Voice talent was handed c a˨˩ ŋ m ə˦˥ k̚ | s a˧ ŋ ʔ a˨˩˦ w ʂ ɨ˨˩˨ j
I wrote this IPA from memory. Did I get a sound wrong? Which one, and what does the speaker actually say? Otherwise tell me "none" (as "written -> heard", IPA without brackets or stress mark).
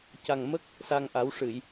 none